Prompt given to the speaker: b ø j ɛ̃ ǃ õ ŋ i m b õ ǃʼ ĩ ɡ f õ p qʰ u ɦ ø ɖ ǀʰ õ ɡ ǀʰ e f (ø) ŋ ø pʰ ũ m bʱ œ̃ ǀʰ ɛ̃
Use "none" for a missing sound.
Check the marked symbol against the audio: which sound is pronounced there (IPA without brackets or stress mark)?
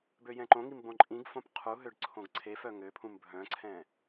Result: œ